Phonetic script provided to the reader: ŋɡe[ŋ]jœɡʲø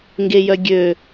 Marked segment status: incorrect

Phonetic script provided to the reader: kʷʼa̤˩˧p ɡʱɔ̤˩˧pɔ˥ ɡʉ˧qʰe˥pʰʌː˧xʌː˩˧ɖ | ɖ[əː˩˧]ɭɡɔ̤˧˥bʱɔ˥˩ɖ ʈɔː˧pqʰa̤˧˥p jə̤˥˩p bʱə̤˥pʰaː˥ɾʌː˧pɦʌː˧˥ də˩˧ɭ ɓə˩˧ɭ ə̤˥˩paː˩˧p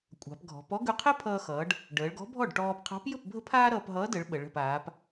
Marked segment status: correct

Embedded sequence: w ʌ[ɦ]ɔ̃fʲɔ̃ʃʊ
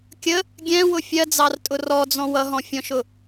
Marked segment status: correct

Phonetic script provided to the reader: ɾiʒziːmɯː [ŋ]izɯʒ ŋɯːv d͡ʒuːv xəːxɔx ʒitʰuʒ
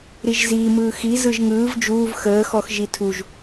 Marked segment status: incorrect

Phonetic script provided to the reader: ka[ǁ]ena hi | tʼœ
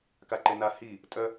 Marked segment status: incorrect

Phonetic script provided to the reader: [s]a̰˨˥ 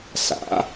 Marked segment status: correct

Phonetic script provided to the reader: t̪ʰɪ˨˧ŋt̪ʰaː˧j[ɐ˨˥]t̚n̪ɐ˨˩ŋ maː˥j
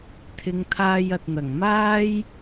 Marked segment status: incorrect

